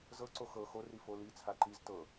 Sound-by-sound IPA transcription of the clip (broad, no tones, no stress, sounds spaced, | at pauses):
z ɤ ǀ o x ɤ x o r i f o l i t͡sʰ a ǃ i z t ɤ